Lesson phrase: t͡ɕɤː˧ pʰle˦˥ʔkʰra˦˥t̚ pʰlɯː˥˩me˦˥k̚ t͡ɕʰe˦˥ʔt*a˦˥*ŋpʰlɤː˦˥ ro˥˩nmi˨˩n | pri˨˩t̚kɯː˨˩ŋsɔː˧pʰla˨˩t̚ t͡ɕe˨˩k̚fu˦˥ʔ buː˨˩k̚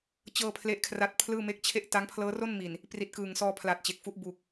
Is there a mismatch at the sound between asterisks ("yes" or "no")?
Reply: no